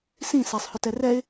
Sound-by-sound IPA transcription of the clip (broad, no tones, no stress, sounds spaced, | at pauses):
s ĩ s ɛ sˤ h ʏ t ɛ r ɛ ɪ̯